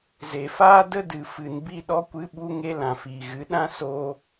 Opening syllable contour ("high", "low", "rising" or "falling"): low